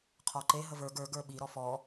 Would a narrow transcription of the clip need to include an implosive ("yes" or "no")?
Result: yes